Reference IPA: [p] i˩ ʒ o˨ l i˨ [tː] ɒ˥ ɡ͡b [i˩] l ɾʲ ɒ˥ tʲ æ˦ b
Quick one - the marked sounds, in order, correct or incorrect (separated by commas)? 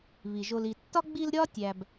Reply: incorrect, correct, incorrect